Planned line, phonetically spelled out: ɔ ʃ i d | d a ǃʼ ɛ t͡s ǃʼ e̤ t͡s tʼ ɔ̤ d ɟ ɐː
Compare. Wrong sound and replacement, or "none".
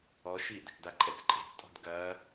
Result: ɟ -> ɡ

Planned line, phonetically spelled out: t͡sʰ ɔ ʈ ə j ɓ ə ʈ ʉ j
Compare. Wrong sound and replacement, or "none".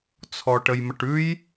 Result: ɓ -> m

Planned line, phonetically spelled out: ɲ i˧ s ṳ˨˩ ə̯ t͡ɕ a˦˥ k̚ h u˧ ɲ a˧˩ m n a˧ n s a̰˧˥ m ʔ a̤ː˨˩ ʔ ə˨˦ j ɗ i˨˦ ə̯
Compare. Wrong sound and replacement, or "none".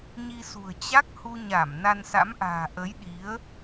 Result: none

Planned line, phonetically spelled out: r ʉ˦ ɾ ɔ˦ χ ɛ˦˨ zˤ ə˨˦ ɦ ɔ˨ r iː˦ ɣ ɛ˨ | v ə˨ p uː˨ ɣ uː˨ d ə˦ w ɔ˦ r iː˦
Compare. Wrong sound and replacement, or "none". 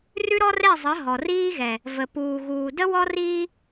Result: χ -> r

